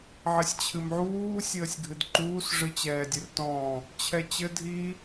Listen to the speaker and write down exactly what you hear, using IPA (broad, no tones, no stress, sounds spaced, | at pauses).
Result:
ʕ ɘ sʲ t͡ɕʰ ɨ m ʕ uː sʲ əː sʲ ɡʱ ɨ d ǃ uː s ʐ ɨ t͡ɕ ɛː dʲ ɘ r t ɔ̃ | t͡ɕʰ ɛ t͡ɕ ɘ dʱ i